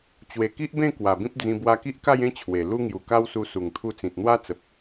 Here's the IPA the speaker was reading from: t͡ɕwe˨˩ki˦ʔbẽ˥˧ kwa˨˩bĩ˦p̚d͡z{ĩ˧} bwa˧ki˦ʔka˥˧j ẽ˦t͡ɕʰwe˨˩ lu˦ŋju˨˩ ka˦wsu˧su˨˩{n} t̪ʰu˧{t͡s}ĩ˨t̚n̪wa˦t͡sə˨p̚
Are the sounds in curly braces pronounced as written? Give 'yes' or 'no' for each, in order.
yes, no, yes

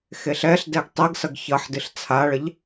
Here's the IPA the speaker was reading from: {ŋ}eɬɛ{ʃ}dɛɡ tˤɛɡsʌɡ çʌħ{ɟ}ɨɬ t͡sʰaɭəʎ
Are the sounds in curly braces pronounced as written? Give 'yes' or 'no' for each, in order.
no, no, no

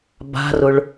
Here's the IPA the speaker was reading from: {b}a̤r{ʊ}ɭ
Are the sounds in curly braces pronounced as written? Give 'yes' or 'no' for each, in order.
yes, yes

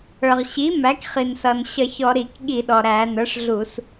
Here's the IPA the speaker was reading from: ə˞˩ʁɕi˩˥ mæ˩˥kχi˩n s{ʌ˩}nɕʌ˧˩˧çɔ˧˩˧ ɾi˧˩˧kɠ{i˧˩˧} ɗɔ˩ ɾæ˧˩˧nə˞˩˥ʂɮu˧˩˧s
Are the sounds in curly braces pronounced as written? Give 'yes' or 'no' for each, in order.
yes, yes

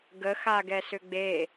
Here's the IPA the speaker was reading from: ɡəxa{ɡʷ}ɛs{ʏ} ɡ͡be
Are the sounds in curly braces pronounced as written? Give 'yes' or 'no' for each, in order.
no, yes

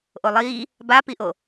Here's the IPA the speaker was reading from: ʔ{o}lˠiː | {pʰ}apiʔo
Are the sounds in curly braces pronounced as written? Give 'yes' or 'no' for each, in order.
yes, no

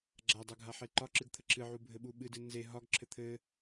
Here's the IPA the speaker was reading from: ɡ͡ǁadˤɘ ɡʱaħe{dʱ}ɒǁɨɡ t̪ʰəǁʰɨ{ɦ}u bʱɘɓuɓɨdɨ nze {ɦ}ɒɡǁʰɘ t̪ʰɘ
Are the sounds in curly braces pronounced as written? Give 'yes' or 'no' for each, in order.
no, no, yes

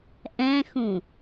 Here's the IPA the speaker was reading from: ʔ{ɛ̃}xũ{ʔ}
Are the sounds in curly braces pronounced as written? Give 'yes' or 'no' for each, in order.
yes, no

